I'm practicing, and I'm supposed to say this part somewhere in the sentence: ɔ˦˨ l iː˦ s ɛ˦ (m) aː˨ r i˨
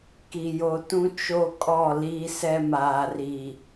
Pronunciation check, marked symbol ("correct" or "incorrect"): correct